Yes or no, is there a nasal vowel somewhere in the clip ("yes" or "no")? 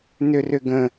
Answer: yes